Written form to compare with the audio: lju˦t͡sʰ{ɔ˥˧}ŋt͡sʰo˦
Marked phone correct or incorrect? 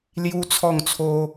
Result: correct